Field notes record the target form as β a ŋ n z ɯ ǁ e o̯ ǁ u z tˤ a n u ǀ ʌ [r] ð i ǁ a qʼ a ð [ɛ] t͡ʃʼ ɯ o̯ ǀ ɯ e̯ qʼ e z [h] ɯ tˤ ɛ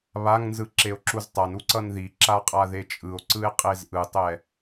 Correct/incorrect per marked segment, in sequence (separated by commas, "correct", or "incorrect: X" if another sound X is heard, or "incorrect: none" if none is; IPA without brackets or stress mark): incorrect: n, incorrect: e, incorrect: ʔ